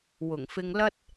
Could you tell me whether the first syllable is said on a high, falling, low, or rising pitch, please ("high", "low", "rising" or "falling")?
low